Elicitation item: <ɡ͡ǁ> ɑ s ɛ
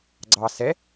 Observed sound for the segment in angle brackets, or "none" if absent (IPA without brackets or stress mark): ɡ͡ǀ